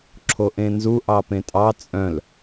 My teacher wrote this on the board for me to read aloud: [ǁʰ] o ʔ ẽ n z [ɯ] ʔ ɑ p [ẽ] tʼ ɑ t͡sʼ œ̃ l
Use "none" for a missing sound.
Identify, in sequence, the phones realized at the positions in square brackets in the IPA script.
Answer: ǁʰ, u, ẽ

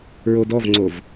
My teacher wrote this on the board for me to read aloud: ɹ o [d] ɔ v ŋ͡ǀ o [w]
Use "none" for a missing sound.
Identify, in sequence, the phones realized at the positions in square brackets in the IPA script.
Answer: d, v

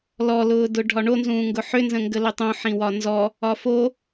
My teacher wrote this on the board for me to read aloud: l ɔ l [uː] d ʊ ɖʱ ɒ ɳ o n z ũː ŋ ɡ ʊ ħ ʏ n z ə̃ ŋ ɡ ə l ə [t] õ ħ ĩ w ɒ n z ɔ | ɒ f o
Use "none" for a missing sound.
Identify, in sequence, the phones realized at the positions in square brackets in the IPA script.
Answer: ʊː, tˤ

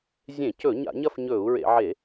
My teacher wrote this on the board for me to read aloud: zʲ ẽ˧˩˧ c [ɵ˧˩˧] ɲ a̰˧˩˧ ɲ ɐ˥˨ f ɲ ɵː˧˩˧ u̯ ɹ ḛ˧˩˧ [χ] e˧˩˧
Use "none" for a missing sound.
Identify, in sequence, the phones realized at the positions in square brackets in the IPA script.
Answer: ɵ˧˩˧, ʕ

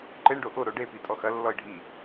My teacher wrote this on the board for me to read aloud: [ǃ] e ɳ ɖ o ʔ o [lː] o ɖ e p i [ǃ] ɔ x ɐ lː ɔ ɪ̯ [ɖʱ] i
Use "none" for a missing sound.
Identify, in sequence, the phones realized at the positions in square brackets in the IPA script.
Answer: ǃ, ɾ, tʼ, ɖʱ

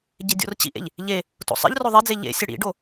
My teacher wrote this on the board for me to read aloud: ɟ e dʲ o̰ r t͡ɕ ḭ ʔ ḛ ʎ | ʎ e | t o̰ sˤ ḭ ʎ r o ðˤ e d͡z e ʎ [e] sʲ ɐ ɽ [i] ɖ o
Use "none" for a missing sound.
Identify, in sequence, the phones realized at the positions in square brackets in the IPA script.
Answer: ḛ, ḭ

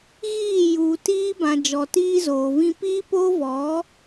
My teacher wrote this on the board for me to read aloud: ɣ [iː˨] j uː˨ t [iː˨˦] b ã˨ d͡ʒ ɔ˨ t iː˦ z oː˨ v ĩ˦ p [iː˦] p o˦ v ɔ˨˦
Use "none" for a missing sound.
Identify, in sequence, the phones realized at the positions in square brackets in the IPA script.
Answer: iː˦˨, iː˦, iː˦

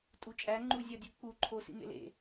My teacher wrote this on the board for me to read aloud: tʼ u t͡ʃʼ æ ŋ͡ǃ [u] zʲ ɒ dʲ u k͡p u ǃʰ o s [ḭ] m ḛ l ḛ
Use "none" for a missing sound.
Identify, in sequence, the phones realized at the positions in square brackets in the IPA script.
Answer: u, ḭ

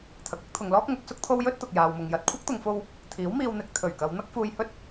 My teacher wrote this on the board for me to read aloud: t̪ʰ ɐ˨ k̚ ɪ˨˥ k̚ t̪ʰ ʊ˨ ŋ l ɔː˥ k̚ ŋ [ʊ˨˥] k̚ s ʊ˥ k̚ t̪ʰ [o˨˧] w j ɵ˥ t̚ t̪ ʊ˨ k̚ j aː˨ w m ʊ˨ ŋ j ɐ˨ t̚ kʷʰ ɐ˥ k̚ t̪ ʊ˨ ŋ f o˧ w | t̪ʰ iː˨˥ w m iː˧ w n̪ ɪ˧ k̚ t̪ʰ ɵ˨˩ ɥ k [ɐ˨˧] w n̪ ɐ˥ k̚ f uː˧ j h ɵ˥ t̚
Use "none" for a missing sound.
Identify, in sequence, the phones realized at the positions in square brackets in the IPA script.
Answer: ʊ˨˥, o˥, ɐ˨˧

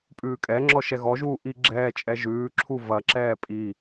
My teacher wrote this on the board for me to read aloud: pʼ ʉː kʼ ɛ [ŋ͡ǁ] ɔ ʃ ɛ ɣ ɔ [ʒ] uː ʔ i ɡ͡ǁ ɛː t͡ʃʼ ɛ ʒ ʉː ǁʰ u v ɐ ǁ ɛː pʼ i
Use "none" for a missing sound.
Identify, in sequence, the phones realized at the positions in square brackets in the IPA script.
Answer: ŋ͡ǁ, ʒ

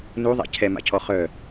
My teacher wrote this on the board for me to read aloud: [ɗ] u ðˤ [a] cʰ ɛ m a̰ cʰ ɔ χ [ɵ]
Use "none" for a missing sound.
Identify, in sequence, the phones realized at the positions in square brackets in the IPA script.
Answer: n, a̰, œ

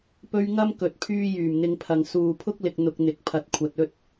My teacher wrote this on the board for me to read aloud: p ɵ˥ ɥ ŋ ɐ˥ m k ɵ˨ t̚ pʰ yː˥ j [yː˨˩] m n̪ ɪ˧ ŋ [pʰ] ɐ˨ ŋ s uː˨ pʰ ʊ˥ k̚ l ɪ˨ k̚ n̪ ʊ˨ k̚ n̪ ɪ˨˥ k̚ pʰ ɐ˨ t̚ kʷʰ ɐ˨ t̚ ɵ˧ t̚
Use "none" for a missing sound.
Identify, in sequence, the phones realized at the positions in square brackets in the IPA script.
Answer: yː˨˩, pʰ

